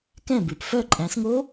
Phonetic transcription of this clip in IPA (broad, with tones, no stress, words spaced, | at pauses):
kɛ̃˥˨bʉ˨˩p fœ˥˨ ǃʼæ̃˨˦sŋo˦˥